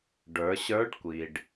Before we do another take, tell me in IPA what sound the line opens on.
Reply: ɖ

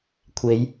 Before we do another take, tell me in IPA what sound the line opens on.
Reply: kʷʰ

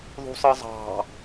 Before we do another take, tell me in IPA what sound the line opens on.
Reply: ðˤ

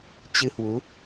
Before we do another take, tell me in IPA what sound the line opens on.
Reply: t͡ɕ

